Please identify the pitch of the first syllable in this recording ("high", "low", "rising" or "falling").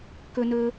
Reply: high